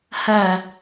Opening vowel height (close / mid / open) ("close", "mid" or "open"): open